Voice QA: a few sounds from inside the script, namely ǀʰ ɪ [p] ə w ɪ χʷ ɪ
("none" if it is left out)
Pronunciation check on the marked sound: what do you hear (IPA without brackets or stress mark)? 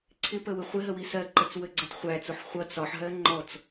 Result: p